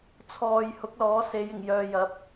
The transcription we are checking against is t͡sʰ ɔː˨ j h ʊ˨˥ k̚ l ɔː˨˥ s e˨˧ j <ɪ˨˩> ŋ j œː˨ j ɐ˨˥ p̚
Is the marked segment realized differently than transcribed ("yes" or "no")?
no